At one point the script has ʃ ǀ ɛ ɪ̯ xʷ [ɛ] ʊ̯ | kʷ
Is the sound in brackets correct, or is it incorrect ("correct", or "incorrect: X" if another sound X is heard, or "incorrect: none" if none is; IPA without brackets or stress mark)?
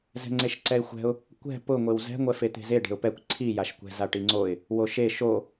incorrect: ɛ̤